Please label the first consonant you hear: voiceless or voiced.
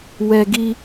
voiced